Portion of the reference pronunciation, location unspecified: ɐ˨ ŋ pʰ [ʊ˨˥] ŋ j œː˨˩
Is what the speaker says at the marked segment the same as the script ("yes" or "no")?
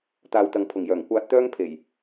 no